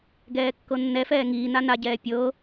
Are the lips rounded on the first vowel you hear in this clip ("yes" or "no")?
no